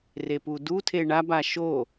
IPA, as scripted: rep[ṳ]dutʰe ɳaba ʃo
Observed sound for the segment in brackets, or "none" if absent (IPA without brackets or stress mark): u